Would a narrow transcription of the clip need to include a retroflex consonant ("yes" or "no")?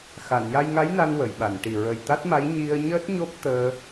yes